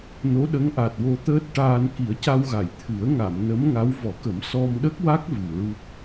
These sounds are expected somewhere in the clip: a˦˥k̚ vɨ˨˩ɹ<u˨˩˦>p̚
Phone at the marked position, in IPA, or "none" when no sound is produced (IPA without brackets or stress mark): u˦˥